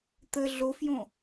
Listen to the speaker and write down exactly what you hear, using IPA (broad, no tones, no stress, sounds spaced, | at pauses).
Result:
t̪ ə ɮ o f j õ